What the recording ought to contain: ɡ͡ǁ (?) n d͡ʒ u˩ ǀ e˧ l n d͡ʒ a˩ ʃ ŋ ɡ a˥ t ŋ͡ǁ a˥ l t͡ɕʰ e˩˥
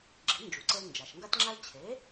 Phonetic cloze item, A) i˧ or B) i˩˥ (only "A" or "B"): B